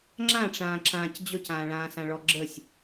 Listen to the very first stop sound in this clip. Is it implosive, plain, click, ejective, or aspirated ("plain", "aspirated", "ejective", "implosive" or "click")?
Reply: click